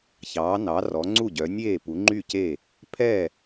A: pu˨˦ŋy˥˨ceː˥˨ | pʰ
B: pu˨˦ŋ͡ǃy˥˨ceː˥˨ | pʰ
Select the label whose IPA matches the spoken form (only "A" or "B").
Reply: B